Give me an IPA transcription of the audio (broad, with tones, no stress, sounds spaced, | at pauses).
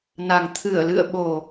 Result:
n a˨˩ ŋ t̪ʰ ɨ˧˩ ə̯ l ɨ̰˧˨ ə̯ ɓ o˨˩